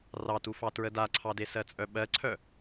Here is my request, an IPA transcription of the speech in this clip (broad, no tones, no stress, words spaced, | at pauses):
rɑtufɑ tɹədaǀʰɑde sɜt͡sʼœɓɜǀʰœ